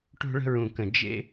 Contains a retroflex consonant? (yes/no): yes